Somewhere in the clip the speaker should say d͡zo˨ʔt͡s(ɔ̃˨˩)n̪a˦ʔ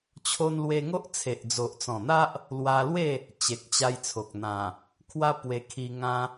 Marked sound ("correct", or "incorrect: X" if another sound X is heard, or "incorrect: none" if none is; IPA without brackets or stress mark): correct